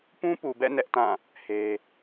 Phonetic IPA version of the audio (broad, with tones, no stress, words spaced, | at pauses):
pũ˦pu˨bɛ̰˦˨ nɛ˦ʔtã˦˨ | he˦